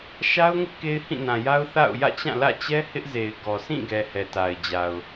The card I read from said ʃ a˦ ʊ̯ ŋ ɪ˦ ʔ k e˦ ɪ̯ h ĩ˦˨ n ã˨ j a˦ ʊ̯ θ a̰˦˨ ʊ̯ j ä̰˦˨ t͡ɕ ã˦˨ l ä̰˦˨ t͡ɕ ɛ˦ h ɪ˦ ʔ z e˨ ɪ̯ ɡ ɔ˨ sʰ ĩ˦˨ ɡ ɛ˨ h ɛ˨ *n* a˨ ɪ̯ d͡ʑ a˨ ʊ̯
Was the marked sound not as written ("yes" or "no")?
yes